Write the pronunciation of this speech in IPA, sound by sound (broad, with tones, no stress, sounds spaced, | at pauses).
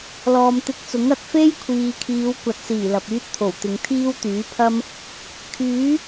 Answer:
l ɔː˨ m t̪ ɪ˧ k̚ t͡s ʊ˨˥ ŋ ɐ˨ t̚ f e˥ j kʷʰ iː˨ kʰ iː˨˧ w kʷ ɐ˨˥ t̚ s iː˨˩ l ɐ˨ p̚ yː˥ t̚ t̪ʰ o˨˩ w t̪ ɪ˨˧ ŋ t̪ʰ iː˥ w t̪ yː˨˥ pʰ ɐ˥ m | kʰ yː˨˥